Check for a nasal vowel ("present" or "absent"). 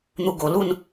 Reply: absent